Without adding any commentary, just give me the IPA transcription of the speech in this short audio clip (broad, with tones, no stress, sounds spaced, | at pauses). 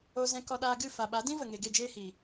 o˧ z ɛ̃˧ k ɔ˧ ɗ aː˧ ɡ ɨ˦˨ f a˨ ɓ a˨˦ d ĩ˦ v ə˨ ŋ e˨ ɡ e˦˨ d͡ʒ eː˦ h iː˨